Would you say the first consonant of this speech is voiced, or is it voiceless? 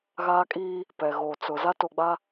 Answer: voiced